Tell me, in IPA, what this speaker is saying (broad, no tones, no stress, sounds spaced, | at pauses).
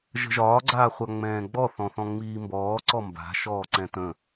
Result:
ʒ ə̤ ʒ ɒː ɡ͡ǀ aː χʷ a ŋ͡m ɛ̃ː ɡ͡b ɔ θ ɔ̃ θ ɔ̃ ŋ͡m iː m b ɔː ǀ ɔ m b a̤ ʃ ɔː ǀ ɛ̃ t ə̃